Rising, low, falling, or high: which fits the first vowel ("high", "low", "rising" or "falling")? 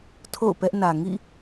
falling